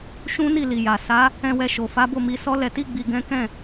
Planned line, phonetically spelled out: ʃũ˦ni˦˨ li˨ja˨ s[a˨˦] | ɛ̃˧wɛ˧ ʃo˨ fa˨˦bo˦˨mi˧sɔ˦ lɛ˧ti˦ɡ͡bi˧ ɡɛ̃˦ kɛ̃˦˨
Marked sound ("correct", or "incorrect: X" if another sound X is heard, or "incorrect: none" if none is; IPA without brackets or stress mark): correct